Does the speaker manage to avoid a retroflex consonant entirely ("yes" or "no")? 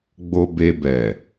yes